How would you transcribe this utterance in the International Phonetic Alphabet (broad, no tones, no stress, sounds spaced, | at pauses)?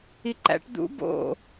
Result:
i ǃ æ̰ ʈ d̪ ṵ b o̰